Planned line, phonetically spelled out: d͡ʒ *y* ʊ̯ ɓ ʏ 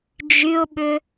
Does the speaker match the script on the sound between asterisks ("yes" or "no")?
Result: yes